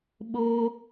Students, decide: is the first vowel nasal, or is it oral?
oral